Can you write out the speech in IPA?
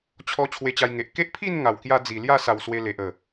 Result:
t͡ɕʰ ɔ˧ t͡ɕʰ w e˧ t͡ɕ a˧ j ŋ e˨ ʔ k e˦ ʔ pʰ i˥˧ n ŋ a˨˩ w k j a˧ d͡z i˨˩ l j a˥˧ s a˨˩ w s w e˧ l e˨ ʔ ə˨˩

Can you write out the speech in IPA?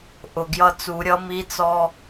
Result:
ʔ ʊ˨˩ ɡ j ʌ˧ t͡s u˨˩˦ ɾʲ ʌ˧˥ m i˧˥ t͡s ɔ˧

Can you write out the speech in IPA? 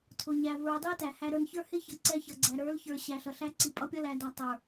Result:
tʰ ʊ˨ ɲ æ˨ v ə˞˨ dˤ i˦ t æ˨ h æ˦ ɾ ə˞˦ n ç ə˞˦ h ɪ˦ ç ʌ˨ ǀ ɛ˦ ç ʌ˨ ɡ͡ǀ æ˨ ɾ ə˞˨˦ l ç ə˞˨ ɕ æ˨ ɬ ʌ˨ ɬ æ˦ ǀ i˨ pʼ ʌ˦ pʲ ʌ˦ l æ˨ d æ˨ tˤ ə˞˨

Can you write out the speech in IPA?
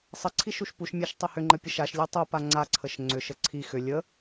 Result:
sˤ ə ǀʰ i ʃ u ʃ p u ʃ mʲ a ʃ tˤ ə h ʏ ŋ͡ǃ ə pʲ ə ʃ a ʃ lʲ u tˤ u p a ŋ͡ǀ a ǀʰ ə ʃ ŋ͡ǀ ʏ ʃ ə ǀʰ i x ʏ lʲ ə

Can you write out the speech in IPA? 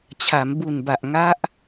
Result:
t͡ɕʰ a˩˦ m b u˨˩ n b a˨˩ ʔ ŋ a˦˥ ʔ

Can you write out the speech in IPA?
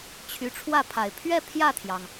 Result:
t͡ɕʰ y˧˥ ʈ͡ʂʰ w ä˥˩ pʰ a˨˩ ɪ̯ pʰ ɥ ɛ˥˧ pʰ j ä˥˩ t̪ʰ j ɑ˩ ŋ

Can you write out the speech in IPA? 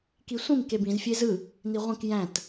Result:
k i sʷ ĩ m k e b ĩ z fʲ e z ɯ | n i ʁʷ ĩ k j æ̃ t

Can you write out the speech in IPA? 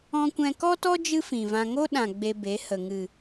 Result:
ɔ̃˧ kʷ ɛ̃˧ k ɔ˦ t ɔ˦ d͡ʒ ɨ˦ f ĩ˨ v ã˧ ŋ o˦ ɗ ã˨ ɡ͡b e˧ b e˨˦ h ə˨ ŋ ɨ˨

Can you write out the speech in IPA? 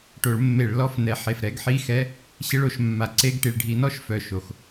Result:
ʈ o˧˩˧ ɭ mː e˧˩˧ ɭ l ɔ˧˥˧ f n ɛ˨˦ ħ e˨˩ f ɾ ɛ˧˥˧ ɡ ħ i˧˥˧ x ɛ˧˥˧ | ɕ ɪ˧˥˧ ɭ o˧˩˧ ʃ mː a˨˩ ǀ e˧˥˧ ɡ ʈ i˨˩ ɭ ɖʱ i˧˩˧ n ɔ˧˥˧ ʃ f œ˨˩ ʃ o˨˩ x

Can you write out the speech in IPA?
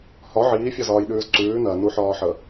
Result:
h ɒ ʕ iː fʲ ɒ z ɒː j ɗ ʉː z ǀ ʉː n ɜ n u ħ ɒː ħ ə

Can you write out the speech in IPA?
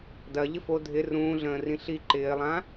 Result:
d ɐ ʎ ɪ f o dʱ ɪ r ũː ɮ ə̃ː r ĩ ɬ i ǃ ɪː lˠ ã

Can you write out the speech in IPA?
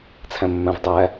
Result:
t͡sʰ æ̃ mː æ̃ v dˤ æ

